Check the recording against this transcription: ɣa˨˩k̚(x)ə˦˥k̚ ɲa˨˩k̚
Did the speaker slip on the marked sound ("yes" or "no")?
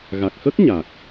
no